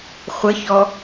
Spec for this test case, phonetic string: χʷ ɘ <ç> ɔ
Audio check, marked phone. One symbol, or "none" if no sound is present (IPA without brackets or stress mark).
ç